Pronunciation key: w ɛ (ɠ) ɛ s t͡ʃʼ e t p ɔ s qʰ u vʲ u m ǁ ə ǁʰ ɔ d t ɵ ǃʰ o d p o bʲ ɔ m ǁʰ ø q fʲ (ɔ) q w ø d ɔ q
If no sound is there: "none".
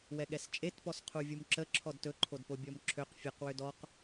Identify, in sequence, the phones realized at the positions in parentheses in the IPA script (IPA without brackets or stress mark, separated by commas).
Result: ɠ, ɵ